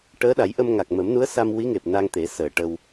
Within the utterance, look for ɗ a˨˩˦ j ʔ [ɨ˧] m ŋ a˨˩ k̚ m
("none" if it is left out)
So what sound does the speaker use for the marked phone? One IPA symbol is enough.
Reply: ə˧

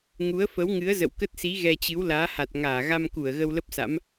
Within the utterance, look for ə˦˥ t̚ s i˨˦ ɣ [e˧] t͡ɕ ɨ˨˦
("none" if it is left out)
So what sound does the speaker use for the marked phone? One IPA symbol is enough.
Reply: ɛ˧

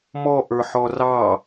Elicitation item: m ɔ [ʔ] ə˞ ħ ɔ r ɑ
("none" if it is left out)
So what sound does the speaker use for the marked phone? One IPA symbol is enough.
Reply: ʔ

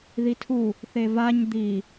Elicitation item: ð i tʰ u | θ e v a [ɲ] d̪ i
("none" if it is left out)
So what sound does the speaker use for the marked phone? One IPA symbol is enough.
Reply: ɲ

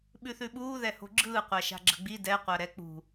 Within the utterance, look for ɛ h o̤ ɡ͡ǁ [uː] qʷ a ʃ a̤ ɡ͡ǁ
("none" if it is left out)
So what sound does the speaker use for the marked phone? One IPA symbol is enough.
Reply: ɯː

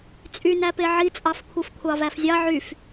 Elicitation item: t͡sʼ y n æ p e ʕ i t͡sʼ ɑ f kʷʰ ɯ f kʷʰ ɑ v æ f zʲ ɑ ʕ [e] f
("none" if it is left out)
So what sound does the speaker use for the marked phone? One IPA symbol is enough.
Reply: y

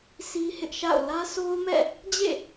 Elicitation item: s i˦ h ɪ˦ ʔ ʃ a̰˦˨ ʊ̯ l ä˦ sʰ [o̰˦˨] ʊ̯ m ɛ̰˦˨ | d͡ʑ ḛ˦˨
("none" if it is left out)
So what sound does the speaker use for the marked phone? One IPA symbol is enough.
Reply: o˦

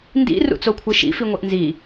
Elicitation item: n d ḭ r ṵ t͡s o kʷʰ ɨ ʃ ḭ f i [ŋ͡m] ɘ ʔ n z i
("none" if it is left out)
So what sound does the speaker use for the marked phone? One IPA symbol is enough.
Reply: ŋʷ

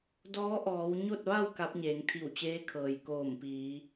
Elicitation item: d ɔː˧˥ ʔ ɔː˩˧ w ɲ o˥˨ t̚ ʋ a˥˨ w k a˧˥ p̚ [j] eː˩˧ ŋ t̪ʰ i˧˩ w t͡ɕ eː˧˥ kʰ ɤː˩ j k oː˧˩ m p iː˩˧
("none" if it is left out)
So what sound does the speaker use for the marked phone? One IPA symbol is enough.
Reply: ɲ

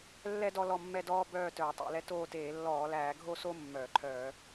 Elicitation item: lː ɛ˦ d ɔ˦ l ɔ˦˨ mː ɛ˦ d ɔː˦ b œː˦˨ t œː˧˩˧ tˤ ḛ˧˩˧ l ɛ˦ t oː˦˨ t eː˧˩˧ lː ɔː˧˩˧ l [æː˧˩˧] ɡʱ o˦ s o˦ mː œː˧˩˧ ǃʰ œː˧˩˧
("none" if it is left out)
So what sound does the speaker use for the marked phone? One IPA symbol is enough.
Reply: æː˧˩˧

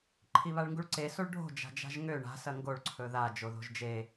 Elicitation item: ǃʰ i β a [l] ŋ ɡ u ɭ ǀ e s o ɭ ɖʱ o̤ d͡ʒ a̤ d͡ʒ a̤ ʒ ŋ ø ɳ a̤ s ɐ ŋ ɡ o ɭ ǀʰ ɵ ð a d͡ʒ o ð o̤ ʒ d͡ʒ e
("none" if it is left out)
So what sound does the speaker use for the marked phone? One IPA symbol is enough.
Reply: ɭ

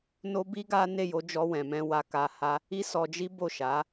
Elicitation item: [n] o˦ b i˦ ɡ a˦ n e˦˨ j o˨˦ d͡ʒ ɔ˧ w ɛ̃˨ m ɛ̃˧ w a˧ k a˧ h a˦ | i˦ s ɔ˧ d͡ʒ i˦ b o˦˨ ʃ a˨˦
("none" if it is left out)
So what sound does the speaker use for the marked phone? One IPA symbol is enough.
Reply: n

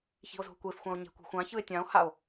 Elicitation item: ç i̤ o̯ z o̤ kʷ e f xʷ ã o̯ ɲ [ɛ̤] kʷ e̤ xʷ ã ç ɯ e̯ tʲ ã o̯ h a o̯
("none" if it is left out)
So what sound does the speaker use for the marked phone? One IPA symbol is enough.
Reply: e̤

